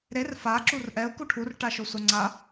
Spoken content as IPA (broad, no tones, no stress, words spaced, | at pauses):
ɾer fa ǁurʔɛʊ̯ kuʈʰur ʈaʃosʷaŋ͡ǀa